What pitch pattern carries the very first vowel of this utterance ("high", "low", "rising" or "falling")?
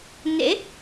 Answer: rising